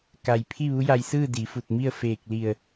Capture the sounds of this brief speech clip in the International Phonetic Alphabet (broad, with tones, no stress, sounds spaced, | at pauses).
k a˩ j pʰ i˥˨ ʋ u˧˥ j a˧ j s ɯː˥˨ d i˩˧ f u˧˩ t̚ m i˥˨ ə̯ f eː˧˩ k̚ l i˧˩ ə̯